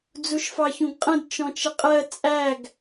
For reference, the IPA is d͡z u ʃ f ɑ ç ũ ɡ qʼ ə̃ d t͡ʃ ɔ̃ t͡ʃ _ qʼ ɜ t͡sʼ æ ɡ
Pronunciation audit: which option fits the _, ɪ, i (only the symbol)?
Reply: ɪ